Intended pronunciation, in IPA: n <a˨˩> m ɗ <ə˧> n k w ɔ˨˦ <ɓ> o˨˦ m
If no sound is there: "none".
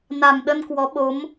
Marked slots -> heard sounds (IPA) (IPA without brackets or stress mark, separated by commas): a˨˩, ə˧, ɓ